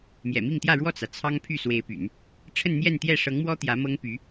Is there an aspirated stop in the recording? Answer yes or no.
yes